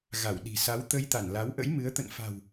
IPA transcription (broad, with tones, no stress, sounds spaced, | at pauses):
ɣ a˧˩ w ɗ i̤˨˩ s a˨˦ w t̪ ə˧ j t̪ a˧˩ n l a˨˦ w ʔ ə̰˧˥ j m ɨ˨˦ ə̯ t̪ ə̰˧˨ n f a̤˨˩ w